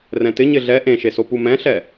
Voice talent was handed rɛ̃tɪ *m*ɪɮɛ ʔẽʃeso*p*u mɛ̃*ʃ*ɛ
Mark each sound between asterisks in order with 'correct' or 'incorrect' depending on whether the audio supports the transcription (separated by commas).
incorrect, correct, incorrect